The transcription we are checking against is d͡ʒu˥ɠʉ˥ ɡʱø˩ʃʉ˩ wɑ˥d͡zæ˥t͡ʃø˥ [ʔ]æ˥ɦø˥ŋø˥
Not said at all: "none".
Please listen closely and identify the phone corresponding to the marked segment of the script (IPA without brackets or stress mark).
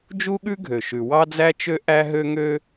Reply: ʔ